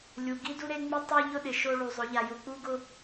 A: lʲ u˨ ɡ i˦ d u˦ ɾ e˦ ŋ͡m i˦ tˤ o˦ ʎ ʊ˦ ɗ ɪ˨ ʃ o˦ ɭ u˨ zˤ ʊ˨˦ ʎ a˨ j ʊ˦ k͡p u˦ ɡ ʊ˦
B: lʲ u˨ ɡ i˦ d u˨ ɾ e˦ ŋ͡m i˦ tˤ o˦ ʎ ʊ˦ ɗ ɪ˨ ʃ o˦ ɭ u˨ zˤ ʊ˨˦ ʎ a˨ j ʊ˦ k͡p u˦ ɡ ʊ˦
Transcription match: A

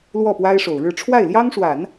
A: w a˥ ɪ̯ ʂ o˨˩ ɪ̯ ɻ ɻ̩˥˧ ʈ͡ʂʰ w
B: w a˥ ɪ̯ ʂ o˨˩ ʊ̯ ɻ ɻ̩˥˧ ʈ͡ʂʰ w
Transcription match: B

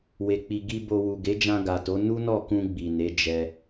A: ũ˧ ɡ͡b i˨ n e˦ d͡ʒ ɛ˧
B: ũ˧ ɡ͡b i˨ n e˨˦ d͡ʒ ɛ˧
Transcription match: B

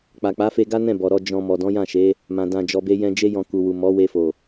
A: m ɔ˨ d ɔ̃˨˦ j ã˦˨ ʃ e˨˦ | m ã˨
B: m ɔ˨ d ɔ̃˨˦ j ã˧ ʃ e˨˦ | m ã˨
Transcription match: A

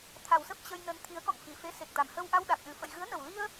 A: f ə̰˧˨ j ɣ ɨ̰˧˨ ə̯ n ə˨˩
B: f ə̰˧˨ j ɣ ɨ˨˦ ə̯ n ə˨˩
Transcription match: B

